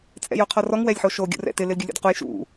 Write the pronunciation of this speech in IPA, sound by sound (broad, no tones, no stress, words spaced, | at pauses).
t͡sʼɛ̰joqʰɔrɔŋ wɛlʲħoʃo ɡʲṵrɛ̰tɪ lɪlɡʲulʲo̰dquj ʃṵ